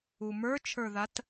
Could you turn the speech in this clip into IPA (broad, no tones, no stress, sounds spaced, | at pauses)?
u m ə˞ t͡ʃʰ ə˞ ð a t